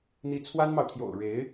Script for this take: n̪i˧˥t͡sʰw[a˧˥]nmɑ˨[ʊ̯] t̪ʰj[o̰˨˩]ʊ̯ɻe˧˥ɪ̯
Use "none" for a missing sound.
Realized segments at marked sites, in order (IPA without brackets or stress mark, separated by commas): a˥, ʊ̯, o̰˨˩